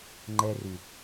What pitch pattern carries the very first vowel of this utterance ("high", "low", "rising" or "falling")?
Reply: high